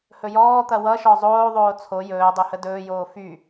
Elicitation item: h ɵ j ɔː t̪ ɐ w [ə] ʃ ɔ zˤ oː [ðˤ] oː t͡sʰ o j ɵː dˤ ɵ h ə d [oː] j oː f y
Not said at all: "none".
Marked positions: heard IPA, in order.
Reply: ʌ, ðˤ, ɵː

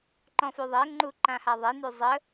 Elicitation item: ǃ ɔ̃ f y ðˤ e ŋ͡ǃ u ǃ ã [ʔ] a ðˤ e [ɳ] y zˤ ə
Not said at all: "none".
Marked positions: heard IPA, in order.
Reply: h, n

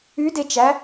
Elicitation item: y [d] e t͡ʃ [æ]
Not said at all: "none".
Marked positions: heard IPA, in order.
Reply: d, æ

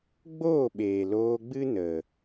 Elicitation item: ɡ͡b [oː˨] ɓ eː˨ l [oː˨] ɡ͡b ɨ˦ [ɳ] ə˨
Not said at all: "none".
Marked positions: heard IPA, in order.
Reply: oː˦˨, oː˧, n

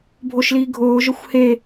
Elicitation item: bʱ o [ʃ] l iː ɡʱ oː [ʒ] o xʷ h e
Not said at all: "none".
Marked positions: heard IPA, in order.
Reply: ʃ, ʒ

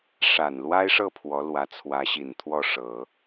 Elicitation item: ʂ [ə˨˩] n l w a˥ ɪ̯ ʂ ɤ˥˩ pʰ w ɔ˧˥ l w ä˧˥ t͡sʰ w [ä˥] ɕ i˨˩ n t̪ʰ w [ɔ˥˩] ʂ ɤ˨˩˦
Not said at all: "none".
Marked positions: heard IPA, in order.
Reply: a˨˩, ä˧˥, ɔ˥˩

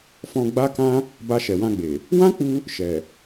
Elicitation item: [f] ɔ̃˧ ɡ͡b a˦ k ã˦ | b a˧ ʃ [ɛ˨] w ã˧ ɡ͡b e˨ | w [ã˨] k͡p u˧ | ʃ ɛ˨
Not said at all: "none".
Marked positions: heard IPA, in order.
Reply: f, ɛ˨, ã˦

